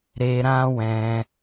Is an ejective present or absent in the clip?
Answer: absent